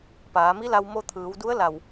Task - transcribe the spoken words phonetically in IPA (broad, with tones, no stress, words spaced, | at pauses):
paː˩˧mi˧˥la˧w mo˧t̪ʰɯː˩˧wdu˧˥ə̯ la˧˩w